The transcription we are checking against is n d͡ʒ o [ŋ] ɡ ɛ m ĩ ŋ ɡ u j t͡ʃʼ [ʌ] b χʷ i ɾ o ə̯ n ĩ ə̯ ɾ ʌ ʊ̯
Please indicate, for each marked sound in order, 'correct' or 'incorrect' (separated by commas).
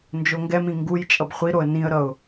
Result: correct, correct